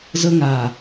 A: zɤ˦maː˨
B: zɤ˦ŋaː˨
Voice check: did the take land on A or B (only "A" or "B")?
B